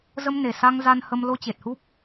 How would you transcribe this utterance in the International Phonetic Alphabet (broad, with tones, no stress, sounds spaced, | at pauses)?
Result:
z ə˧ m n e˨˩ s a˧ ŋ z a˧ n h ə˧ m l o˧ t͡ɕ e˨˩ t̚ h u˦˥ p̚